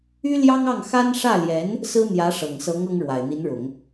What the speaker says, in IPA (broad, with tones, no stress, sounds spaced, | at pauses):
y˥ l j ɑ˥ ŋ ɑ˥˩ ŋ x a˥ n ʂ ä˥˩ l j ɛ˧˥ n | s ɹ̩˥ n̪ j ä˧˥ ʂ ɤ˨˩ ŋ s ɤ˧˥ ŋ ɤ˥ ŋ ɻ w a˨˩ ɪ̯ n̪ i˧˥ n ɻ ʊ˨˩˦ ŋ